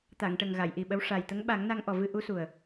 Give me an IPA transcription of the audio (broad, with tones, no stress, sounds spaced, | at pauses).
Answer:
t̪ a˨˩˨ ŋ ʈ ə˨˩ ŋ ɣ a˨˩˨ j ʔ i˨˩ ɓ ə˧˥ w ʂ a˨˩ j t̪ ə˧˥ ŋ ɓ a˨˩˦ ŋ n a˧ ŋ ʔ ɔ˨˩ v ɨ˧ ʔ u˧˥ s u˨˩ ə̯